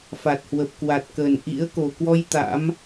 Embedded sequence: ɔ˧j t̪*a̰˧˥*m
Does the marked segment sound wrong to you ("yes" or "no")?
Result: no